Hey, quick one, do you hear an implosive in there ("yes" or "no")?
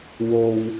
no